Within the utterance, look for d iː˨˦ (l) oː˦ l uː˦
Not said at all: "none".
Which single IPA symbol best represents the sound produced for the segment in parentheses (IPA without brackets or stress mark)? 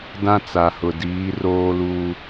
r